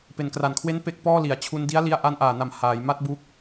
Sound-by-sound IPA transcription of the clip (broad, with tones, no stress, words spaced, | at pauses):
pe˨˩nkra˨˩nkʰwe˦˥n pe˦˥k̚pɔː˥˩ li˨˩a̯ t͡ɕʰu˧ndi˦˥a̯ li˧a̯ʔa˧nʔaː˨˩na˨˩m haː˩˦j ma˦˥t̚buː˦˥k̚